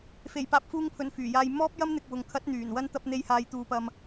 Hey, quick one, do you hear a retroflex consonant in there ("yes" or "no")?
no